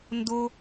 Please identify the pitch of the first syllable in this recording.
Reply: high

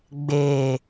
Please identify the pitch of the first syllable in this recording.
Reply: low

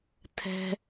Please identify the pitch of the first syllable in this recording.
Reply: high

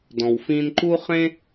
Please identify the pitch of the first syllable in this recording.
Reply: low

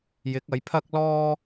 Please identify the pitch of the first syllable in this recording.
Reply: rising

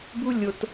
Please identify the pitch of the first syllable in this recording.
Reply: high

